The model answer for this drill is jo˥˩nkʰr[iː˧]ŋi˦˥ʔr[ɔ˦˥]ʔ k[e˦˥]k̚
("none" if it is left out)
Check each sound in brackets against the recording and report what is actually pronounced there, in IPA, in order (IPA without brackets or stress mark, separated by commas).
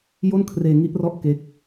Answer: eː˧, ɔ˦˥, e˦˥